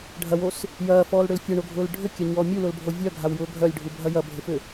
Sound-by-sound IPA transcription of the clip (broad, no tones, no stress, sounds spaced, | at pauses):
ɖʱ ɐ w o s | j ɐː f ɔː l ɽ ʏ l fʲ œ ɳ o ɡʱ ʊː l ɖʱ ʏ kʲ ɐ ɲ ɔː mʲ u l ʊ l bʱ o vʲ œ ɡʱ a w j ʊː ɡʱ œ lʲ ɖʱ u bʱ ɐ j ɐ bʱ ɪ f ʏ